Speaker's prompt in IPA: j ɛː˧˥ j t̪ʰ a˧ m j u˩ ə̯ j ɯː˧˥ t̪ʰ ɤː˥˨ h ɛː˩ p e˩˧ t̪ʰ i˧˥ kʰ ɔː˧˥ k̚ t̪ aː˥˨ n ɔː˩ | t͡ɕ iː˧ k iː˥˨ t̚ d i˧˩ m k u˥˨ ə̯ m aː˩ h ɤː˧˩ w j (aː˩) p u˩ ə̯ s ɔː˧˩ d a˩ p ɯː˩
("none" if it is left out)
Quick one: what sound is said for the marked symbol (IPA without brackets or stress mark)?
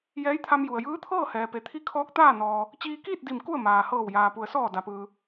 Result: aː˩